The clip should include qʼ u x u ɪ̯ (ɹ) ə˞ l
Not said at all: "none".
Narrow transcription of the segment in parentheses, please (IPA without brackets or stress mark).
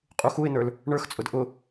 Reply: n